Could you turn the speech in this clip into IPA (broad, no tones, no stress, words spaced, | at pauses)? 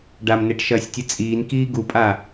ɖamneʈʃɐːsʲtʲɨ t͡sʼiːnkiː ɡupʼa